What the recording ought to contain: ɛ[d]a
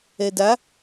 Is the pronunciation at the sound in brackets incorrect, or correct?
correct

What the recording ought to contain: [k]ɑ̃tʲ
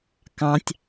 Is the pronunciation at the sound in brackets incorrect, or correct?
correct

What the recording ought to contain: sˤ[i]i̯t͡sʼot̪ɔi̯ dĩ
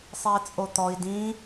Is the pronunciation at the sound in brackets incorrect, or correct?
incorrect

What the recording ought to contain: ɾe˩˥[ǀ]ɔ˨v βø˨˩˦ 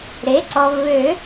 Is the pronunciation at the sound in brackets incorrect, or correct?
correct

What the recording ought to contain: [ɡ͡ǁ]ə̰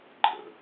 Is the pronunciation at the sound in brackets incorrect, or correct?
incorrect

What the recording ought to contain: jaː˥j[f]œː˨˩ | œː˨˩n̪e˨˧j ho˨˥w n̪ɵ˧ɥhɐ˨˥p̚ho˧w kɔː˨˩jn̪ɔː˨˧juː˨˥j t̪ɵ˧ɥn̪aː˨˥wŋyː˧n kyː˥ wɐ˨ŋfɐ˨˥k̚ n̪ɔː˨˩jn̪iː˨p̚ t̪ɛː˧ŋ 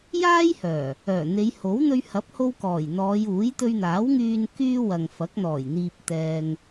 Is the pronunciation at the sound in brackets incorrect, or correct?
incorrect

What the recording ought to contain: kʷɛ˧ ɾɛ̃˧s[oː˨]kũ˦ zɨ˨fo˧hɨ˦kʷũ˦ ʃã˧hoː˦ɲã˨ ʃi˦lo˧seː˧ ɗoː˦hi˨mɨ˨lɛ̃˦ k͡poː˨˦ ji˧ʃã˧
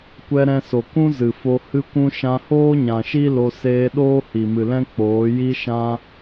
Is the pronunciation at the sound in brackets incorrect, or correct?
incorrect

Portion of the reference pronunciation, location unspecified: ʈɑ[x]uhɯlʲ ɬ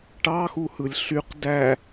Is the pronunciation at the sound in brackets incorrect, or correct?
correct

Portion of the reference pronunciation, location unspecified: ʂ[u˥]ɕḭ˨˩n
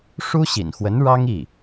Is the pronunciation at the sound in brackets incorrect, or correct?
correct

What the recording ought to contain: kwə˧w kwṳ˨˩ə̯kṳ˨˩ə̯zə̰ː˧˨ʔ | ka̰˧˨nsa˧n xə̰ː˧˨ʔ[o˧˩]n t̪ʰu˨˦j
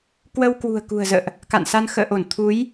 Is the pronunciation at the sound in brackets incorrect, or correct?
correct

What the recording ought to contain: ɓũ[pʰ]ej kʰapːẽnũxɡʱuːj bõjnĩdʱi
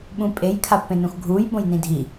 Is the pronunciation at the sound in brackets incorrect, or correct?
incorrect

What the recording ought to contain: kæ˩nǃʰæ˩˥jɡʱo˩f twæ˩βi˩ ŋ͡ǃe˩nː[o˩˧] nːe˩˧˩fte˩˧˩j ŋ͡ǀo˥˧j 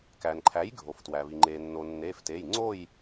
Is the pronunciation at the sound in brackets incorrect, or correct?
incorrect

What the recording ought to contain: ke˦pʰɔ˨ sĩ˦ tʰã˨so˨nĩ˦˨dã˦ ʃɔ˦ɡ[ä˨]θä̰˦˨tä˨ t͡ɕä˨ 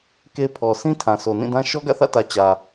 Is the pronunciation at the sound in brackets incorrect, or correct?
incorrect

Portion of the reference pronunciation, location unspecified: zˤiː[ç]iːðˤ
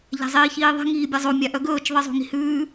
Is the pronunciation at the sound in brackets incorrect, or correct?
correct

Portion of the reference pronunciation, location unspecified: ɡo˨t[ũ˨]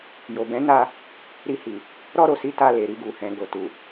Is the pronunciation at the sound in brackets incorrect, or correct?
incorrect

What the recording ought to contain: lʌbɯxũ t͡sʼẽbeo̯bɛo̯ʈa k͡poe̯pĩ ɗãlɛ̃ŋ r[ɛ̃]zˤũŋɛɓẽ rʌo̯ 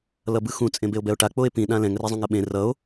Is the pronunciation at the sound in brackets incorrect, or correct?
incorrect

